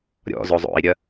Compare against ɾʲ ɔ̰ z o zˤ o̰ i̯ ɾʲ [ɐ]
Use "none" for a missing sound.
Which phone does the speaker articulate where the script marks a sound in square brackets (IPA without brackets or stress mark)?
ɐ